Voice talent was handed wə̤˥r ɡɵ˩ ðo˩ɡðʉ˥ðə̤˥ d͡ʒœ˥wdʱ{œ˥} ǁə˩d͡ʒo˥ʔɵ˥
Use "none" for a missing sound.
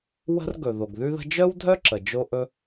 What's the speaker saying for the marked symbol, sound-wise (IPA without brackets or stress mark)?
œ˥